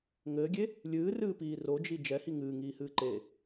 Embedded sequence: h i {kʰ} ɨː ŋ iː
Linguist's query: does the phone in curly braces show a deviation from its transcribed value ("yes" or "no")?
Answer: yes